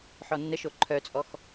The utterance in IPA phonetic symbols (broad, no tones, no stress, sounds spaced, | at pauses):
ħ ɔ nː ə ʃ o ǃʰ œ t͡sʼ ɔ x